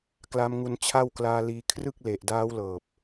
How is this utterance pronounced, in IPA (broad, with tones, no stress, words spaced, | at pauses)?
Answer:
kla˦˥mŋu˧n t͡ɕʰa˥˩wklaː˧liː˧ kʰrɯ˥˩k̚le˨˩ʔdaː˦˥wlɤː˨˩p̚